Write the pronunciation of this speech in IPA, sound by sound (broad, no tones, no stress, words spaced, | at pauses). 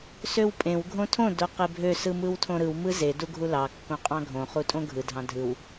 søwpʼẽw ɡʱõtʰõ doqebʱø sɯmɯwtʰõɾɯw mɯze duɡʱulɑ kːõqʼɑ̃ɡʱõ χutʼõɡʱɯ dʱɑ̃dʱɯw